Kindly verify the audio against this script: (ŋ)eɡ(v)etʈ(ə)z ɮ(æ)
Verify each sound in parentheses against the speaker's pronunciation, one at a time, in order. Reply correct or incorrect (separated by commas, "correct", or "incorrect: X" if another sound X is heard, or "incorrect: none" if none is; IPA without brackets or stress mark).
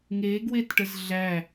correct, incorrect: w, correct, correct